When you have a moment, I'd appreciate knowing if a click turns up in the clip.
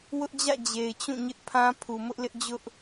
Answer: no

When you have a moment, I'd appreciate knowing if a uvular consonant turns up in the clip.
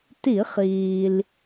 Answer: yes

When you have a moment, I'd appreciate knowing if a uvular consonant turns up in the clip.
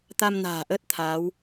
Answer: no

